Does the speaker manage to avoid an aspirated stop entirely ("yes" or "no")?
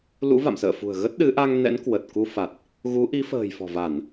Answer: yes